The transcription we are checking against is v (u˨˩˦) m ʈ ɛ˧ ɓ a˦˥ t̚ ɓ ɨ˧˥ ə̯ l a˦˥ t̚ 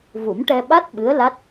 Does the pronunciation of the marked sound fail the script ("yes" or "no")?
no